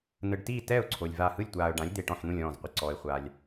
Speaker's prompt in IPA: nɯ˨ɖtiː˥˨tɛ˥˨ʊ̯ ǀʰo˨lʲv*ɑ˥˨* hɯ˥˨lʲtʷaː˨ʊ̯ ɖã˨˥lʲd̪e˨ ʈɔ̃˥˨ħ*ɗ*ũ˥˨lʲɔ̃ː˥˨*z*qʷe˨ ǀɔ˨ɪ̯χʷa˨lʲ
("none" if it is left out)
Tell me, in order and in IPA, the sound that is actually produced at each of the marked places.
a˥˨, n̪, z

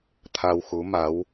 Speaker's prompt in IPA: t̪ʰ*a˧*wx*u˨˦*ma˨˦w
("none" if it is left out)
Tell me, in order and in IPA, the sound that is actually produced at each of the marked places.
a˧, u˨˦

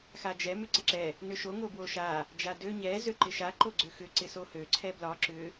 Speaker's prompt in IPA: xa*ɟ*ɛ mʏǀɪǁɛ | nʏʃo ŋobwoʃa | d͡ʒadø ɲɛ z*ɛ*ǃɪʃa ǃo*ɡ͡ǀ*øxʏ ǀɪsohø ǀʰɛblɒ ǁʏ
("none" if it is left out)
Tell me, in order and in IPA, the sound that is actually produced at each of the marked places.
d͡ʒ, ø, ɡ͡ǀ

